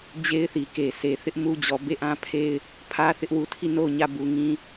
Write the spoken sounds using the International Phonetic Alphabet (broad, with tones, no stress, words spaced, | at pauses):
d͡ʑe˦ɪ̯θi˨ke˨ se˨θɪ˦ʔ mu˦d͡ʑɔ˨ be˦˨ʔã˦pʰe˦ɪ̯ | pʰä˦θɪ˦ʔwu˨tʰi˦˨ no˦˨ʊ̯ɲä˦˨ bu˨ŋĩ˦